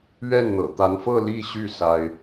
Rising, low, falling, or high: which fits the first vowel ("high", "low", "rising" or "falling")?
falling